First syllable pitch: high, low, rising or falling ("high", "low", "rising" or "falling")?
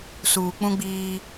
low